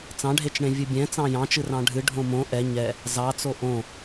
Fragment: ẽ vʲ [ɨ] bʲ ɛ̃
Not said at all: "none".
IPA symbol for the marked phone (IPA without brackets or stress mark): ɨ